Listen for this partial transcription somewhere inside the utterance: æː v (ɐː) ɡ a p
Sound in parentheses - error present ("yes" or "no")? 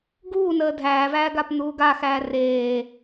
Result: yes